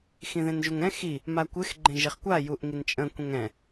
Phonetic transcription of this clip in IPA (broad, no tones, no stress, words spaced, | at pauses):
xĩðẽnʒuŋɛ̃ xi | makʷɪx ɡ͡ǃẽʒeχkʷa juʔŋint͡ʃʼə̃ kʷɛ̃ŋɛ̃